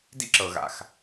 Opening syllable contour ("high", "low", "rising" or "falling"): high